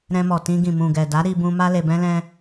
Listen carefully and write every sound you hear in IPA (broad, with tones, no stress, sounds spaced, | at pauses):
ɾ ɛ̃˧ m ɔ˨ t ĩ˧ ɡ ĩ˨ m ũ˨ ɡ ɛ˨ d a˨˦ ɾ i˧ b ũ˧ m a˦ l e˧ b ɛ̃˦ l ɛ̃˦